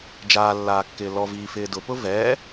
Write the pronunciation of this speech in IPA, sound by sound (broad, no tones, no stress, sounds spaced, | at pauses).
d͡ʒ aː lː aː kː ɪː l ɔ v iː f ɪː d ʊ p ʊ v ɛː